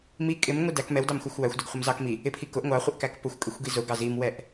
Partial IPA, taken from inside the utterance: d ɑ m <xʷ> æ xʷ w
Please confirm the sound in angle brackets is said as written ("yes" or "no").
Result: yes